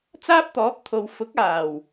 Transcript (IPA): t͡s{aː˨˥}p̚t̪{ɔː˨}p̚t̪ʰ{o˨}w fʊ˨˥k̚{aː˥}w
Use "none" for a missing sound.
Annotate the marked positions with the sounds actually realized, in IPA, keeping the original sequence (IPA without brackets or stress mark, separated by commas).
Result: aː˥, ɔː˨˥, o˨, aː˨˩